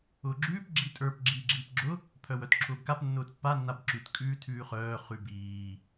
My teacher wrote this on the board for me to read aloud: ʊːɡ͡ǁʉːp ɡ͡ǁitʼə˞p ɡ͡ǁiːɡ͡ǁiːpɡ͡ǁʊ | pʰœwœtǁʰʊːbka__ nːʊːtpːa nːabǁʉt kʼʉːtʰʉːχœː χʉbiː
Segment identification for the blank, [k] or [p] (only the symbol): p